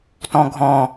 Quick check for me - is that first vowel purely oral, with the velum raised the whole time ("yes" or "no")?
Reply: no